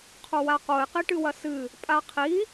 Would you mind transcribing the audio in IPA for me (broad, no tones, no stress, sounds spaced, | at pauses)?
qʰ o w a q o ɪ̯ q i ʈ ɨ w ɐ s ɨ | pʼ a qʰ i